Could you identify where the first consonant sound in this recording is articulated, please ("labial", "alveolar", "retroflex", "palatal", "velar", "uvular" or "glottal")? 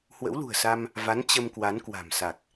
glottal